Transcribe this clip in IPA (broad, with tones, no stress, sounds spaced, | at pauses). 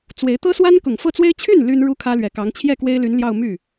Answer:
t͡s w e˧˥ ɪ̯ t̪ ɤ˥ s w a˥ n k ʊ˨˩ ŋ f ɤ˥˩ t͡s w e˥ ɪ̯ t͡ɕʰ y˥˩ n l y˥ n ɻ u˥ kʰ ä˥ l ɥ ɛ˨˩ k ɑ˧˥ ŋ t͡ɕʰ j ɛ˥˩ k w e˥ ɪ̯ l y˧˥ n l j ɑ˥˧ ʊ̯ m y˥˩